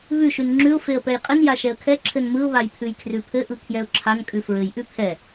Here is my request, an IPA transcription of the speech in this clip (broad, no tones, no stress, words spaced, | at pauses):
βʉʃʉn ŋ͡ǁʉʊ̯feə̯ pɛjqʼɘn jaʃɛə̯kʰɛ ǁʰɘnmɯʊ̯βaj pʰʉjkʰrʉpʰɘʔɯ kʰjɛʊ̯ǁʰan kʼʉfɹɘj ʔʉpʰɛ